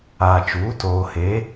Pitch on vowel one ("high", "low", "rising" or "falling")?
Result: low